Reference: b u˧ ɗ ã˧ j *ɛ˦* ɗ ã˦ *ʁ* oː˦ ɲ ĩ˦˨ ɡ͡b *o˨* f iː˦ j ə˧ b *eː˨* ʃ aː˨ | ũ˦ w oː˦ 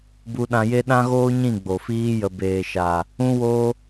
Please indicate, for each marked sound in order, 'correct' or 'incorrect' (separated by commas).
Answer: incorrect, incorrect, correct, correct